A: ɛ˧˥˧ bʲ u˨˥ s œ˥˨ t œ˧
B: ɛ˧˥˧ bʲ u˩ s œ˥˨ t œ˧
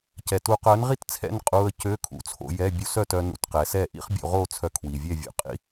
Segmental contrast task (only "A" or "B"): A